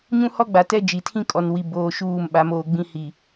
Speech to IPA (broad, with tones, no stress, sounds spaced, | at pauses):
ɲ ũ˦ h ɔ˦ ɡ͡b a˨ t ɛ˦ d͡ʒ i˨ tʰ ĩ˦ kʼ ɔ˨ n w i˨ b oː˨ ʃ uː˦˨ m ɓ a˨˦ m oː˨ ɡ͡b ĩ˦ h i˨